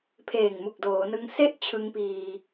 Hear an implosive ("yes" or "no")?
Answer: no